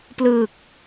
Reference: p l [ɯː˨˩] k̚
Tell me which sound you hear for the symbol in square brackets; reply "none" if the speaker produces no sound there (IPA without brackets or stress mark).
ɯː˨˩